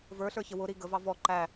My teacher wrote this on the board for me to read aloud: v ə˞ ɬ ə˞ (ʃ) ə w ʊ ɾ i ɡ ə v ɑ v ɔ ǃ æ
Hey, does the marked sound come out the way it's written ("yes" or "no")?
no